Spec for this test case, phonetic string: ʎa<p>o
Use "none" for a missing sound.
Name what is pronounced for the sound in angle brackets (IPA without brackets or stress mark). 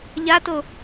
t